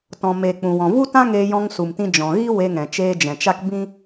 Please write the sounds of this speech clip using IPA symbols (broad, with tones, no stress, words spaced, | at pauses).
tɔ̃˨me˨ k͡pũ˨wɔ̃˨vu˦tã˦ ŋeː˧jɔ̃˧ŋsu˨mtĩ˧ d͡ʒɔ̃˨ɣi˦ we˧ŋɛ̃˨ t͡ʃeː˧d͡ʒɛ̃˨t͡ʃa˦k bĩ˦